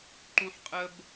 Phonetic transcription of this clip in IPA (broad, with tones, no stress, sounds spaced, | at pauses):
ǃ ũ˥ ħ qʼ ə˥ b